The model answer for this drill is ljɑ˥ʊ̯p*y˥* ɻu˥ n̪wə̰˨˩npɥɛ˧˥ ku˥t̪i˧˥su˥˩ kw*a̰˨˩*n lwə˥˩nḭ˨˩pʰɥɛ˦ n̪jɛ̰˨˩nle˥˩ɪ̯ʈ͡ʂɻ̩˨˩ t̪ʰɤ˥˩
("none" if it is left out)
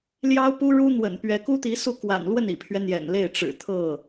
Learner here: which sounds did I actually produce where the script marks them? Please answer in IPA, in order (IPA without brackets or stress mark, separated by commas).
u˥, a̰˨˩